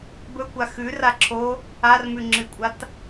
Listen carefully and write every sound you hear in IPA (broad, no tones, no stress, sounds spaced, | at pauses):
b ɵ kʷ a x ʉ r a ǁʰ o | a r m ʉ ŋ͡ǁ ɨ kʷʼ a t